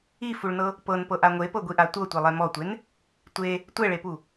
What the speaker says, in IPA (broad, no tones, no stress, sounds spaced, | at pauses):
i f u ɭ n ɤ | p ɤ n p ɤ ʔ a ŋʷ e p ɤ ɡʷ i ʔ a tʷ ɤ tʷ e lˠ ɛ m ɔ tʷ e n | tʷ e | tʷ ɛ ɭ e p u